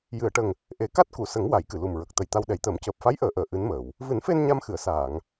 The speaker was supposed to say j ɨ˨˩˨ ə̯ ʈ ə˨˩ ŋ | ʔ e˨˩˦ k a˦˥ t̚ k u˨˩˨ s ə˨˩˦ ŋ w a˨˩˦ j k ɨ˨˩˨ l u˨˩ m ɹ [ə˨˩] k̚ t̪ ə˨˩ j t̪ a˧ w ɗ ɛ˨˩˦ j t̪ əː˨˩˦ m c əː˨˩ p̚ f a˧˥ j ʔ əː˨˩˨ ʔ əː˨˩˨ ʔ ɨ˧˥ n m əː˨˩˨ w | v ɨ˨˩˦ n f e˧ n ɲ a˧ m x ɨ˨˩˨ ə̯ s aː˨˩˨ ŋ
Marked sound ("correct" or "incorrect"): correct